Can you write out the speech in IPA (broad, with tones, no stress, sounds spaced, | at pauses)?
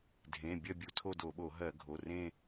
dʱ ẽ˩˧˩ bʲ ɐ˥˧ bʲ u˧˩˧ tʰ o˥˧ d o˧˩˧ ɓ o˧˩˧ ɦ ɜ˧˩˧ ɡʱ o˩˧˩ r ẽ˥˧